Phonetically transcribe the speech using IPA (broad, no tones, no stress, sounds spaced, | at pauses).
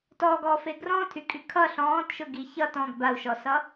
t ɔ ɡ ɔ f e ɡ r ɔ̃ tʰ y kʼ y kʰ ʌ ɬ ɔ̃ː t ʃ ʊ ɡ i ç ʌ t ɔ̃ ɡ b a u̯ ʃ ɔ s ʌ